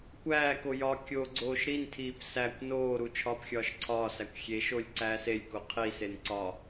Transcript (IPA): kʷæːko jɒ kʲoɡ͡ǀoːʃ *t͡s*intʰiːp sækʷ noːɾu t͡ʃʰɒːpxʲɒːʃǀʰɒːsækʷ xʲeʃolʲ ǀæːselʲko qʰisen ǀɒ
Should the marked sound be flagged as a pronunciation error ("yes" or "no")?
yes